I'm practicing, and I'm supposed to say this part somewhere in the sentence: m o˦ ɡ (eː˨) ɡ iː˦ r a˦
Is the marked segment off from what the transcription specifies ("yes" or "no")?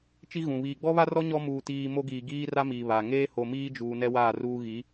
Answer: yes